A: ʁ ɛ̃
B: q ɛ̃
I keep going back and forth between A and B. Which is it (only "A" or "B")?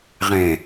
A